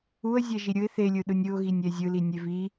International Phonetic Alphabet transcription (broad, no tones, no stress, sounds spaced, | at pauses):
u ə̯ zʲ ɛ ʒ i ɾʲ ɯ ɪ̯ θ e lʲ ɯ ɗ ɯ nʲ ɯ ʊ̯ ɣ i nʲ ɛ zʲ ɯ l i nʲ e v i